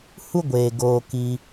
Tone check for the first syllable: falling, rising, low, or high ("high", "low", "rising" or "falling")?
high